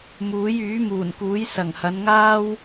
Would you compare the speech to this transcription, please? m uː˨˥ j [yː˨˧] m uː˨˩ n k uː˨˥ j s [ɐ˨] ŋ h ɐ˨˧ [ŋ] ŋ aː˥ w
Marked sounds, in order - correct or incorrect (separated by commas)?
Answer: incorrect, incorrect, incorrect